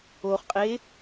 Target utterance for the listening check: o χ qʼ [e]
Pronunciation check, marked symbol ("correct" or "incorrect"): correct